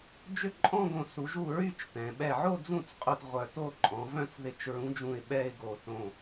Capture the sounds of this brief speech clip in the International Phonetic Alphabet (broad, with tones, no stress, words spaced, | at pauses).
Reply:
d͡ʒʏ˥˩ǃʼɔ̃˥˧ɡõ˧˩ su˩˧ʒu˧˩ ɹy˥˧t͡ʃtɛ̃˩˧ ɓɛ˧˩ʕo˥˧d͡zũ˥˩t͡sqʼu˧˩t ʁʷœ˧˩to˥˧ ǃʼɔ̃˩˧vœ̃˥˩t͡s ðɪ˧˩t͡ʃɹũ˨˥d͡ʒũ˧˩ɪ̯ ɓɛ˥˧ɪ̯ɡo˧˩ tõ˧˩